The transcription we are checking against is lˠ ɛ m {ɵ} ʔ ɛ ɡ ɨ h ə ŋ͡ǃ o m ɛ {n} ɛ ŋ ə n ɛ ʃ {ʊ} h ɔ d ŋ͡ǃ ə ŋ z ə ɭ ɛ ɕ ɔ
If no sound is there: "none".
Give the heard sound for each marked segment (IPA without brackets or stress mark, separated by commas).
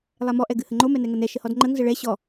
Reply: ɔ, n, ə